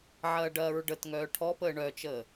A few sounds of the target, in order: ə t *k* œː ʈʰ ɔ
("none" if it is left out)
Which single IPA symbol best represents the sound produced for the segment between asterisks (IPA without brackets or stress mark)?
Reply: ŋ